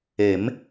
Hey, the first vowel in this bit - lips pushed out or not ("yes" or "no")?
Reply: no